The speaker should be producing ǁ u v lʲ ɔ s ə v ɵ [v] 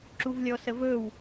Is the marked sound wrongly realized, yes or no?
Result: yes